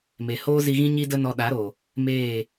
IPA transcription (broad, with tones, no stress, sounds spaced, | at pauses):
m e˨ h oː˦ z i˧ ɣ ĩ˦ ɲ i˦ d ə˦ n ɔ˧ ɗ a˨˦ ɾ o˨ | m eː˦˨